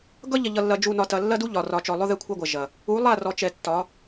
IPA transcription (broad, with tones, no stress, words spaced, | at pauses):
ɡʌ˦ʎɐ˨ʎʌ˨lːɐ˨ d͡ʒu˨nɒ˨tɐ˨ lːɐ˦du˦ ʎɒ˨rɒ˨t͡ʃɔ˨ lˠʊ˦ ðɛ˦kʷʰɐ˦ɡʷɐ˨ ʒɐ˨ | u˨˦lˠa˦˨rɔ˨t͡ʃɛ˨ tːɒ˨˦